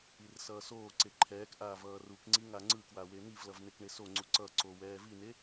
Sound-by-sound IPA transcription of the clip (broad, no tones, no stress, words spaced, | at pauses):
irsʌːsoːǀe ǃʰɛːkʔaː vʌːrukŋ͡ǀi ŋaŋ͡ǀɯkwa wen̪ivlʌv nekɳesoŋ͡ǀu ǀʌǀo wɛːvine